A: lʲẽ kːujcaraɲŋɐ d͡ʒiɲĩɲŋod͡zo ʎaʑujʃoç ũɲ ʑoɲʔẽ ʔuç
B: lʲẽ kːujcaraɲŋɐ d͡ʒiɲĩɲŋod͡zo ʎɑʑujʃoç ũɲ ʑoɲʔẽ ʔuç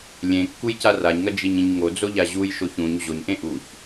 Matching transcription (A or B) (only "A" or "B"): A